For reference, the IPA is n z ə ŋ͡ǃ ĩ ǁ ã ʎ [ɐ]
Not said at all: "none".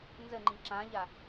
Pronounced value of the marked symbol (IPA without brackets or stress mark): a